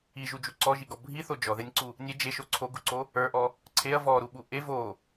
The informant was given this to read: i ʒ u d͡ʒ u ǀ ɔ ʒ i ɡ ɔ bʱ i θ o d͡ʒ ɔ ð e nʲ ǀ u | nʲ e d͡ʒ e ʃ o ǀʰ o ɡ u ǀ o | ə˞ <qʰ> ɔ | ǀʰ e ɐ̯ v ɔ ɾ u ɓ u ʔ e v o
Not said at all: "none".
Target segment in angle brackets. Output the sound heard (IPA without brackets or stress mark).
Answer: ʔ